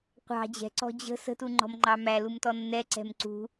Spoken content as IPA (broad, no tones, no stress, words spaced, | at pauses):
qʷɑ̤ d͡ʑɛ̤ǀɔ̤ d͡ʑə̤ sə̤tuŋ͡ǃɔ̤mŋ͡ǃɑ mælumtɔ nːɛǀɛ̤m ǀṳ